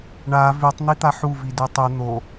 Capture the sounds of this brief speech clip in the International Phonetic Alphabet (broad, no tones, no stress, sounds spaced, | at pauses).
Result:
ɳ a v ʉ tˤ n̪ i t̪ a ħ u v i d ʉ tˤ u n̪ o